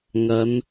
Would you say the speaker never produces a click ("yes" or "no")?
yes